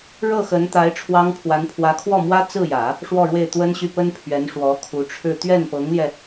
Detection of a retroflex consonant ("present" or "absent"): present